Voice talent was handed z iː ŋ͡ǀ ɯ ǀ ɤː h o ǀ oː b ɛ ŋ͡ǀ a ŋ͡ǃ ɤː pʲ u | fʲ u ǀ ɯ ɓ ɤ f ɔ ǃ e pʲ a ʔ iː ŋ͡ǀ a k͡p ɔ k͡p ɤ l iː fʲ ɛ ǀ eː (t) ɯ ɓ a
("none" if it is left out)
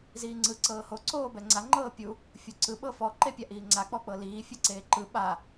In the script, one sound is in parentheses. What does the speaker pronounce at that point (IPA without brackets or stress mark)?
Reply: ǃ